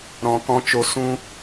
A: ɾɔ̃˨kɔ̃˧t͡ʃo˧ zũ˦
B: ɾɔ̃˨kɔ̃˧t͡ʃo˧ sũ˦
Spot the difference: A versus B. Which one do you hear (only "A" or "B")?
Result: B